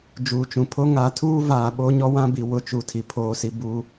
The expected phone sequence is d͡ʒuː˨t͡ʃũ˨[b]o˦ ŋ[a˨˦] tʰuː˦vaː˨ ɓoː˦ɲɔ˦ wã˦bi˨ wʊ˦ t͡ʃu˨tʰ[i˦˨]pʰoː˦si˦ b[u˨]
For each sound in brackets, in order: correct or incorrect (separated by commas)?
incorrect, correct, incorrect, incorrect